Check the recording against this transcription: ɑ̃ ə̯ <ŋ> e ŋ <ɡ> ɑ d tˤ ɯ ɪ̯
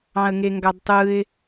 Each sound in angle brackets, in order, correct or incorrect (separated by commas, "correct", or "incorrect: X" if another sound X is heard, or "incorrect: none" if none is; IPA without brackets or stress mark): correct, correct